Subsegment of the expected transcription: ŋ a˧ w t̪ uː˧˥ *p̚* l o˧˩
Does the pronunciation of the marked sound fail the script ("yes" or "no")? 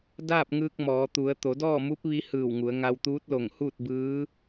yes